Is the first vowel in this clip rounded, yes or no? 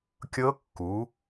no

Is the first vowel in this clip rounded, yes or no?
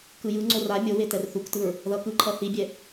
no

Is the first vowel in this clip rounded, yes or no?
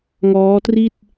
yes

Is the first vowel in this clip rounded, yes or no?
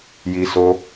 no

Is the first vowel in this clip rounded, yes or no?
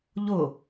yes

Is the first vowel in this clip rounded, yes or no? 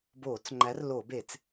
yes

